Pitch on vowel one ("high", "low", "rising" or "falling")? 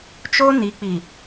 high